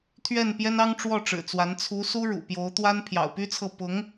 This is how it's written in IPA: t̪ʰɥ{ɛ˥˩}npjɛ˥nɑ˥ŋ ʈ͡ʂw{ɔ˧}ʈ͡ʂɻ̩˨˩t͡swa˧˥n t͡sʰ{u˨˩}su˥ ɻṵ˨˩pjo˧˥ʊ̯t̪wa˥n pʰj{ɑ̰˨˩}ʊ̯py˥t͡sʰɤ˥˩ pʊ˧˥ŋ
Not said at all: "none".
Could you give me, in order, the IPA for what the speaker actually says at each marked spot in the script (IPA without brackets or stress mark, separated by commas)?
ɛ˥˩, ɔ˥˩, u˧˥, ɑ̰˨˩